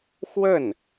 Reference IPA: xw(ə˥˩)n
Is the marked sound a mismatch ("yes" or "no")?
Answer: no